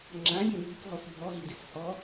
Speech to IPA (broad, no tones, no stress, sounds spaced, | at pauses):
ŋ͡ǁ ã dʲ ã bʱ i k ɦ ɔ s bʱ ɔ ɦ i d ɪ s h ɔ